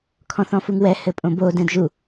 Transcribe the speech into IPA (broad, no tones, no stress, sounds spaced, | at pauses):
kʰ ɔ̃ θ ɔ̃ f u ŋ w ɛ h ɘ pʼ õ b o d ɛ̃ d ʒ u